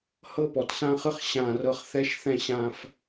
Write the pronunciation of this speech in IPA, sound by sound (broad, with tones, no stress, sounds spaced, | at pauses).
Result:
h ɤ˦ p ɔ˨ t s ã˦ χ ɯ˦ χ ɕ ã˦˨ r ɤ˦ χ θ ɛ˦ ʃ θ ɛ̃˦ ɕ ã˦ f